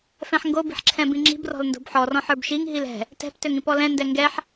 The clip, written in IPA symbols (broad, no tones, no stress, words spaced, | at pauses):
fɛ̃ħŋɡobi̤ħ ǁʰɛ̃bĩŋ͡ǁi̤b rɔ̤lndo̤bħɔ rɔ̃ħə˞bʃiŋ ɦilɛ̤ | tɛ̤p tøŋĩpɔlɛ̃ ndɛŋɡɛħ